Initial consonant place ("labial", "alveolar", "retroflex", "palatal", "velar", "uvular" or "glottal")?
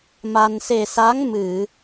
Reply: labial